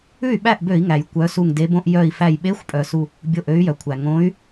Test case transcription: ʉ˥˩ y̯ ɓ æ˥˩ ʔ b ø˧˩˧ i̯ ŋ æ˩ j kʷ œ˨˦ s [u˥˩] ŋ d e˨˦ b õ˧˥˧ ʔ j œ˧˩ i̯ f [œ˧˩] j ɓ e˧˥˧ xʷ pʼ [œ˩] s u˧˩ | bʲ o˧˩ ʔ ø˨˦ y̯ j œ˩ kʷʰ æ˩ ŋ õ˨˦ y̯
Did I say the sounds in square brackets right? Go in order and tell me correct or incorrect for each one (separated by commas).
incorrect, incorrect, correct